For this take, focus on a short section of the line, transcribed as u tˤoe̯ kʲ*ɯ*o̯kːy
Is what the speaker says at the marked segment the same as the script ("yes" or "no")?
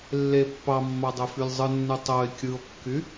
yes